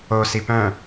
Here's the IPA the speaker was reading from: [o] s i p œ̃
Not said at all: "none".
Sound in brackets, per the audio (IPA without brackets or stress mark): o